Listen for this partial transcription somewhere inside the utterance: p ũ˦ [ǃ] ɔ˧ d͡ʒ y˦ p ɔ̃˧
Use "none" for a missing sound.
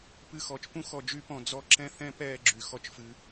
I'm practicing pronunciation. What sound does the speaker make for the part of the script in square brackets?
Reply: x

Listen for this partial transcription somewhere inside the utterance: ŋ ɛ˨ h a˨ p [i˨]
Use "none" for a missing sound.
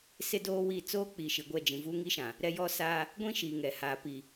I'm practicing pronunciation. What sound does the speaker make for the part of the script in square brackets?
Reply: i˨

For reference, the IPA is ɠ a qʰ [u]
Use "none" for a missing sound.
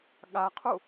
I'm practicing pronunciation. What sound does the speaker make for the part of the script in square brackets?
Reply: u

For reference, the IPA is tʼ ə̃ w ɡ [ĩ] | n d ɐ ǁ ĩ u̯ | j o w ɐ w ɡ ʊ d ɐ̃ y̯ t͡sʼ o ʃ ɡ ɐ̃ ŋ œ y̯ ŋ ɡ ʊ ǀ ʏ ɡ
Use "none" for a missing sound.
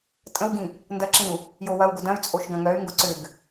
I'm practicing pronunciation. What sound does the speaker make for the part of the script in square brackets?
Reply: ĩ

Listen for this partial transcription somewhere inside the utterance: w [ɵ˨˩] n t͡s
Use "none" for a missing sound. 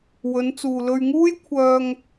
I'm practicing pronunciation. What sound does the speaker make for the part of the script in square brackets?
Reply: ɵ˨˧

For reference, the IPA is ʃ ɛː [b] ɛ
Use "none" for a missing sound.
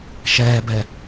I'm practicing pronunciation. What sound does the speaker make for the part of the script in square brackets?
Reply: b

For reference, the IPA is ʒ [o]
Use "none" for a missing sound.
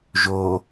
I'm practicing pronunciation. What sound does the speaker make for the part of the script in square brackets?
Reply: o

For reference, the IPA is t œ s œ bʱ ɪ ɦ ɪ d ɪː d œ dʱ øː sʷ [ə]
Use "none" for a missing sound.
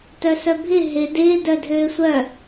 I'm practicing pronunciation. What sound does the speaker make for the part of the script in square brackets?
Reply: œ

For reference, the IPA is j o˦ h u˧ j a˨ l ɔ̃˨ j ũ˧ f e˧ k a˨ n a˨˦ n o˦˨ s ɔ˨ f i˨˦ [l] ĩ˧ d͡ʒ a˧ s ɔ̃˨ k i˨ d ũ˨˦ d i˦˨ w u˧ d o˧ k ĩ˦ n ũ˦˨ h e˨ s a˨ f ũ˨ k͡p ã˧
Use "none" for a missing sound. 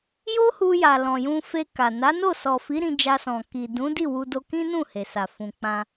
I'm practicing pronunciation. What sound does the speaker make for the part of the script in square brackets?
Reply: ɾ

